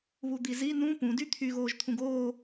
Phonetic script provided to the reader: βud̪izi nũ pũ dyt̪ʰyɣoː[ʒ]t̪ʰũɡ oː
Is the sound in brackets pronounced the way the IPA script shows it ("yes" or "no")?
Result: yes